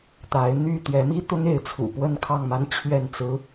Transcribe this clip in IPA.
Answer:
t̪ a˨˦ ɪ̯ n̪ y˥˨ t̪ ɥ ɛ˨˦ m i˦ t̪ ʊ˦ ŋ e˨˦ ɪ̯ t͡sʰ ṵ˨˩ p w ə˥˨ n kʰ ɑ˥˨ ŋ m a˦ n t͡ɕʰ ɥ ɛ˥˨ n t͡s ɹ̩˦

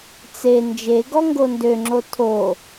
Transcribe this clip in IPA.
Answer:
t͡s e n d͡ʒ e ɡ ɔ ŋ ɡ o n d ø ŋ͡ǁ o tʰ o

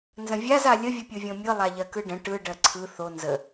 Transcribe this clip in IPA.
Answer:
n z ə̃ vʲ a z a lʲ ə vʲ ɯ pʲ ɯ vʲ õ mʲ ɯ lˠ a ʎ ɜ k ɯ ɖ ə̃ ʈ ɯ ɖ ɜ ǀʰ ɯ θ o n z ə

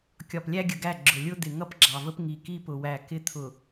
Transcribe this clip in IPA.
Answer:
kʲ ɒ˨ p lʲ æ˦ ɡʲ ə˨ ɡ æ˦˨ ɡ͡ǁ ʊ˨ lʲ ʊ˦ d̪ ɪ˨ ŋ ʌ˦ p ɡ͡ǁ ɑ˨ v ə˦ p ŋ i˨ k i˦ p ʊ˨ w æ˨ k ɪ˦ t̪ʰ ʊ˨

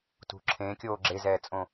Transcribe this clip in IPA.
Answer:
t ṳ ǁʰ ẽ kʲ oː ɡ͡ǁ e z ɛː t͡sʼ õ

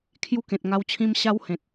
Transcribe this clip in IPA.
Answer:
kʰ j u˧ k ẽ˨ t̚ ŋ a˧ w t͡ɕʰ ĩ˧ m ɕ a˧ w h ẽ˨ t̚

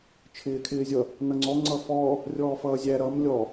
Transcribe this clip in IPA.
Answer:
t͡ʃʰ ɪː kʰ ɪː zʲ ʌ | n ʌ ŋ͡ǀ ɔ ŋ͡ǀ ʌ f ɔː | rʲ ɔː f ʌː zʲ æ ɾ ʌ m lʲ ɔ

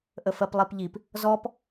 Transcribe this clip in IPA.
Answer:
ʔ ə f ɜ p lˠ i p ʎ i p | z ɔ p

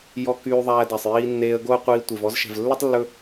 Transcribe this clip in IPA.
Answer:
j ɔ˧ k yː˧ ðˤ æː˧ d æ˨ sˤ j iː˧ nː eː˧ ə̯ ɡ o˦ ə̯ qʷ iː˧ tʷ e˨ v ɔ˧ z ʃ ɛ̤˨ v lː ɵ˦ tˤ lː ɵ˧

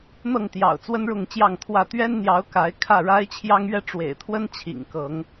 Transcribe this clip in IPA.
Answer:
n̪ ɤ˥˨ ŋ t̪ j ɑ̰˨˩ ʊ̯ t͡s w ə˦ n ɻ ʊ˥˨ ŋ t͡ɕ j ɑ˥˨ ŋ t̪ʰ w ä˥˨ t̪ ɥ ɛ˦ n n̪ j ɑ˨˦ ʊ̯ k a˨˦ ɪ̯ kʰ ä˥˨ ɻ a˦ ɪ̯ t͡ɕʰ j ɑ˦ ŋ ɥ ɛ˥˨ ʈ͡ʂ w ḛ˨˩ ɪ̯ t̪ʰ w ə˦ n t͡ɕʰ ḭ˨˩ ŋ k ɤ˨˦ ŋ

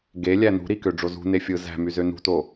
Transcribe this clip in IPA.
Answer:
ɡ e lʲ æ n ṳ ɾ i k ø ɖ͡ʐ o z ṳ n e fʲ ɯ z æ̤ m y z ø n ṳ t o

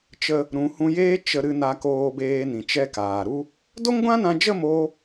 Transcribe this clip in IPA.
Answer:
t͡ʃ ə˧ | ɾ ũ˨˦ h ũ˧ j eː˦ t͡ʃ ə˦ ɾ ɨ˦ n a˧ k oː˧ b eː˧ n ĩ˨ t͡ʃ ɛ˧ k aː˨ ɾ u˦ | d o˦ ŋ ɡʷ ã˦ n ã˧ d͡ʒ ə˦˨ m o˦

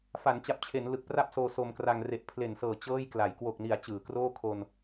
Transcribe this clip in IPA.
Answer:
f a˩˦ n t͡ɕ a˨˩ p̚ t͡ɕʰ e˩˦ n l ɯ˨˩ k̚ p r a˥˩ p̚ s oː˧ s o˧ m k r a˧ ŋ r e˨˩ ʔ pʰ l e˨˩ n s ɤː˨˩ t͡ɕ ɤː˥˩ j k l a˩˦ j k w o˨˩ k̚ n i˩˦ a̯ t͡ɕ ɯː˩˦ k r oː˥˩ kʰ o˧ n

